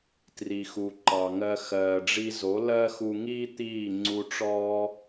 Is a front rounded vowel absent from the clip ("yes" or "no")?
yes